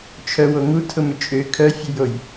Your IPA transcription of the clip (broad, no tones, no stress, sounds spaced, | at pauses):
t͡ʃʰ œ w o ŋ u tʰ ʊ m ʏ t͡ʃʼ ø kʰ œ fʲ ø j o j